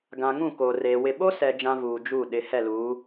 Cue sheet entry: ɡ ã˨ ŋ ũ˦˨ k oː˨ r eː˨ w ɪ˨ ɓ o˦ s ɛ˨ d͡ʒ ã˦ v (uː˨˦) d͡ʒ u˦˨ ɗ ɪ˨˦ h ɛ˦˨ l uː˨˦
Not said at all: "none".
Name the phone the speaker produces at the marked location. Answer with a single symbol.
uː˨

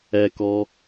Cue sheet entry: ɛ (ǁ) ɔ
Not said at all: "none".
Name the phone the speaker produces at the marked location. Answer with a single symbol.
k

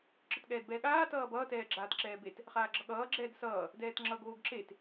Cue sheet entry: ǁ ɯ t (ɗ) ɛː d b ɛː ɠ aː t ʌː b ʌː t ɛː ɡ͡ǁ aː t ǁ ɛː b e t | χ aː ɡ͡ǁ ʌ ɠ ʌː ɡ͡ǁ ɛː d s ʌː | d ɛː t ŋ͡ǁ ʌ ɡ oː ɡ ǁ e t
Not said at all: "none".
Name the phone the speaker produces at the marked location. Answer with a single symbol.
ɠ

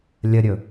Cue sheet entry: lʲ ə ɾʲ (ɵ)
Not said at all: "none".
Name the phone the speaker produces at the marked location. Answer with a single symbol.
ɵ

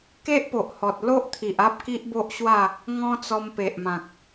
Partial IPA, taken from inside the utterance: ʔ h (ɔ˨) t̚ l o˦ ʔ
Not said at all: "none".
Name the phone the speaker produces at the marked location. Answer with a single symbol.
ɔ˨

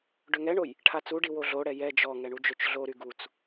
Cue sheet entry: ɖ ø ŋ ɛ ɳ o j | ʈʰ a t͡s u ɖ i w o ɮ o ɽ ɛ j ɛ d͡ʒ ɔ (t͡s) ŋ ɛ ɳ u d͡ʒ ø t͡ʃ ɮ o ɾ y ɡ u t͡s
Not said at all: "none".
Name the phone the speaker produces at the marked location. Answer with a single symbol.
none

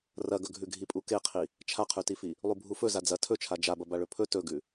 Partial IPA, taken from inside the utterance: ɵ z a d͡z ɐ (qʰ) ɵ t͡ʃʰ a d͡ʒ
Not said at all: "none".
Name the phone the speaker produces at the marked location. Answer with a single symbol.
tʰ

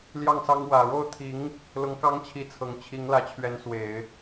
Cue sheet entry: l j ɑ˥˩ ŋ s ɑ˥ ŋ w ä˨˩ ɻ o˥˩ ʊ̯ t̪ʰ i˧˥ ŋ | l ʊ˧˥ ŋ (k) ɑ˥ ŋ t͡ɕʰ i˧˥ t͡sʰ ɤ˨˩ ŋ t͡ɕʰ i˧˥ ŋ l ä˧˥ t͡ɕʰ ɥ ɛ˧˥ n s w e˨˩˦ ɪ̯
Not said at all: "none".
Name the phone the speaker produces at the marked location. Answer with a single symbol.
k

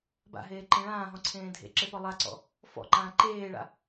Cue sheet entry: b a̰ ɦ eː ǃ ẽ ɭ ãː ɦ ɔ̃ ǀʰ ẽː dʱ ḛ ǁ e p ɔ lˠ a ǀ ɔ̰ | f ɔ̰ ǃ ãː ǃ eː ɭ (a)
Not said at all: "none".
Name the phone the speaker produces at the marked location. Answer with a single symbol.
a̰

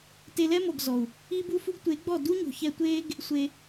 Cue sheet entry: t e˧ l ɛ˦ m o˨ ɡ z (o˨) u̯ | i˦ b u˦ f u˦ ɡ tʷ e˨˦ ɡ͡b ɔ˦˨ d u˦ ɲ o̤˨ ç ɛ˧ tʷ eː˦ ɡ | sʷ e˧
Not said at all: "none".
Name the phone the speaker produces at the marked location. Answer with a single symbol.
ɔ˨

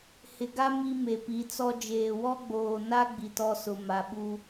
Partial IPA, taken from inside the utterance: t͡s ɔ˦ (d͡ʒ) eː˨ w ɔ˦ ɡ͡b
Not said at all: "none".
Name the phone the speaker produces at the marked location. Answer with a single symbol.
d͡ʒ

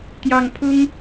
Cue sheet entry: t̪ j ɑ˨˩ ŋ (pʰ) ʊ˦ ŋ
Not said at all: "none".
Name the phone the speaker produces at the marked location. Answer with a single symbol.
pʰ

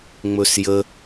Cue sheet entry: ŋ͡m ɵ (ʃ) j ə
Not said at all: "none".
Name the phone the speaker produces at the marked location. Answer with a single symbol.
s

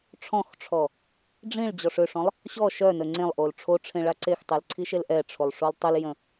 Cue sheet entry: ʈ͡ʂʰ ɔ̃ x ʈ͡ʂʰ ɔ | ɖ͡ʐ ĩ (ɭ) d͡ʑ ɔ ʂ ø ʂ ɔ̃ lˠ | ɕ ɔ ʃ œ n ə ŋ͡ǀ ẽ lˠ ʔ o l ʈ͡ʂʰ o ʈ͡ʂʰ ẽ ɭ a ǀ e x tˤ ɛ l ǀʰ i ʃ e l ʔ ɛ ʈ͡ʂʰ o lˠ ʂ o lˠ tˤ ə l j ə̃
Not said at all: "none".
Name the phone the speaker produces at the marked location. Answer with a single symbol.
ɭ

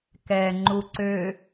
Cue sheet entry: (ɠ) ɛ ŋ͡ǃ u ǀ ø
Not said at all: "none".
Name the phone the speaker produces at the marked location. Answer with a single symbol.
k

